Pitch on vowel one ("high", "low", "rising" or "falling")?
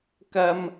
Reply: high